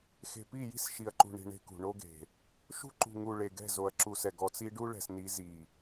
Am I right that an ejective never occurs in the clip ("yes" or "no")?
yes